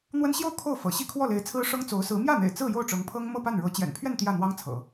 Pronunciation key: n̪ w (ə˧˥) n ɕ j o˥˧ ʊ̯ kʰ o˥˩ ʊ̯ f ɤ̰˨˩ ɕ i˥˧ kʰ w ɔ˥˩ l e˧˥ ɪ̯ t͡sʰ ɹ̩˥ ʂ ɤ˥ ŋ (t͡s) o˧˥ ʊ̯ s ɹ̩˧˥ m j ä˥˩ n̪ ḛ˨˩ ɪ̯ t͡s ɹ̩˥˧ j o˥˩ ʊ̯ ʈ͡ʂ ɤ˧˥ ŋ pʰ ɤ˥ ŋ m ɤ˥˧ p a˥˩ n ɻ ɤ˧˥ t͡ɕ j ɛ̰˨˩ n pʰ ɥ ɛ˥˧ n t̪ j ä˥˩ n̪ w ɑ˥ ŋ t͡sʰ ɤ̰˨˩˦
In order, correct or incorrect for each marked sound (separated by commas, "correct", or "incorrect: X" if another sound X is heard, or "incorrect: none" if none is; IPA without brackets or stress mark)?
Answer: incorrect: ə˥, correct